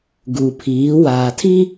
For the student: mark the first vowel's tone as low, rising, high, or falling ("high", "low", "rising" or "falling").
low